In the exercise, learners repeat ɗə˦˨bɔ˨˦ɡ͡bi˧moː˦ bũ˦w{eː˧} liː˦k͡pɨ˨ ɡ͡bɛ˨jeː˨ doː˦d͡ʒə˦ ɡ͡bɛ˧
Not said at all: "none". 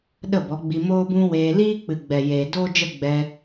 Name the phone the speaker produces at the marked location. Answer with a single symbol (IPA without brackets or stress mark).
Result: eː˧